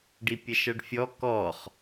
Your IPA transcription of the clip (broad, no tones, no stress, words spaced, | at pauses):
ɖipʲɐʃʌɖfʲɔ kɔχ